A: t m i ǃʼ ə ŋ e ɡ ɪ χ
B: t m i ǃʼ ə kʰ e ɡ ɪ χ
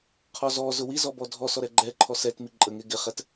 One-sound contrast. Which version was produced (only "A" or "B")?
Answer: A